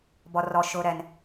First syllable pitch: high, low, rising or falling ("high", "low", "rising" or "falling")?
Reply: low